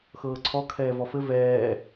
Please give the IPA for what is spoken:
x ɤː ǀʰ ɔ kʰ ɛː v ɔ f ɘ v ɛː

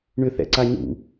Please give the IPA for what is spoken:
ɳ ʏ θ ɛ̰ ǀ a ɲ ṵ

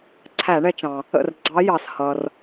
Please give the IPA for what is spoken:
ǀʰ æ˧˩˧ ɳ ɛ˧ t͡ʃ ɑ̃˩ | ə̰˥˩ r ɡ͡ǀ ɑ˧˥ j ɑ˩ s h ʌ˩ r

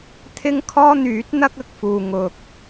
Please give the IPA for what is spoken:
t̪ʰ ɪ˥ ŋ kʰ ɔː˥ n̪ yː˨˥ t̚ n̪ ɐ˥ k̚ ɐ˨ k̚ f uː˨ ŋ ʊ˨ k̚

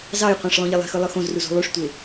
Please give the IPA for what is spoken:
z ɑ j qʷ æ̃ ʂ lˠ õ ʎ e lˠ e̤ x ɯ lˠ ɯ x õ z r u z ṳ lˠ y ʂ tʷ e

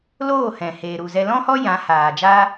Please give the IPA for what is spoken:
l oː˦˨ h ɛ̃˨ h eː˨ ɾ u˨ z ɛ˧ l ɔ̃˦ h ɔ˦ j ã˨˦ h aː˨ d͡ʒ aː˦

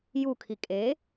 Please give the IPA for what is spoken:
j u kʰ i kʼ e

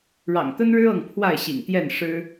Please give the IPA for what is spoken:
ɻ ɑ̰˨˩ ŋ t̪ ə˦ n ɻ ɻ̩˦ ɤ˥˨ ŋ pʰ w a˥˨ ɪ̯ ɕ ḭ˨˩ ŋ t̪ j ɛ˥˨ n ʂ ɻ̩˦

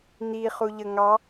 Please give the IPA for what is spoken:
n̪ i χ u ʎ ə ŋ ɑ

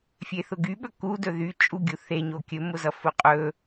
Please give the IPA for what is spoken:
fʲ e θ ʊ ɡ y ɓ ɵ k u d ɵ ð y t͡ʃʼ u ɡʲ u θ e ɲ o kʲ ɵ m ʊ z ʌ f ʊ qʼ ɵ

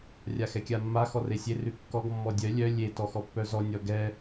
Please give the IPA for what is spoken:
rʲ a x ɛ kʲ a mː a x ɔ r e sʲ e r ʉ kː ɔ ɡ mː ɔ dʲ œ lʲ œ lʲ e t ɔ x ɔ pː œ z ɔ nʲ ɔ ɡ ɛ

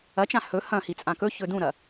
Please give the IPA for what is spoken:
ɐ t͡ʃ ã h ɵ h ɐ̃ h i t͡sʼ ã k ɵ ç ɵ d ũ ɾ ɐ

